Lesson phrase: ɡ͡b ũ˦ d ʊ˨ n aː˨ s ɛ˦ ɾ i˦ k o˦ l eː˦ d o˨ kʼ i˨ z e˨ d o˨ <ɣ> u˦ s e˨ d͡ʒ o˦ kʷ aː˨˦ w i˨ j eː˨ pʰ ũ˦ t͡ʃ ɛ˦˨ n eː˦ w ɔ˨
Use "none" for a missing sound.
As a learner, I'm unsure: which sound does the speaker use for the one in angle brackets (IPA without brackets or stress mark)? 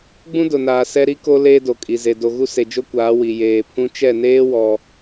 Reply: ɣ